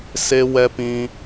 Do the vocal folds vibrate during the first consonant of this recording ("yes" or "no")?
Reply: no